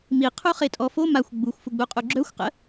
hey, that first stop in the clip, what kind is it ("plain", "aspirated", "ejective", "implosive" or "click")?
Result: aspirated